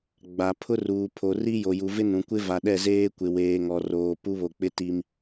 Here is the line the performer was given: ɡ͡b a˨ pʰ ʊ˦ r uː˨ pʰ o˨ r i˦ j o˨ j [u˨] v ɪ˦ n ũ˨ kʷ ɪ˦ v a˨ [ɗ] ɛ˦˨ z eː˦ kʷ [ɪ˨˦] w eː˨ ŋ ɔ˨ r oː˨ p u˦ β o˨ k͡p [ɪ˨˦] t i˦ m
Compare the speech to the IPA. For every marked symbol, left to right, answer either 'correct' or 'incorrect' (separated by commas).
correct, correct, incorrect, incorrect